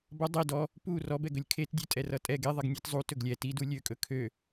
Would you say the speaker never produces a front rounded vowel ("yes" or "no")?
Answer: no